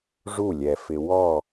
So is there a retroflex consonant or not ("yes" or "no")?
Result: yes